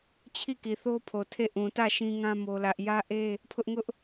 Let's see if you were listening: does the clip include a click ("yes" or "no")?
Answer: no